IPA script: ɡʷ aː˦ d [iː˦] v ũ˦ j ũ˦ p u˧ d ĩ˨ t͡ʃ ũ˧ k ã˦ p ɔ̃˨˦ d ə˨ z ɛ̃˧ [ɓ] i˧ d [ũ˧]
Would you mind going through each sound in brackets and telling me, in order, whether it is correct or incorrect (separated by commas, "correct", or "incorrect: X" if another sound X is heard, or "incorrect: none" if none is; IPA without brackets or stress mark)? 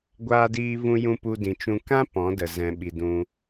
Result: correct, correct, correct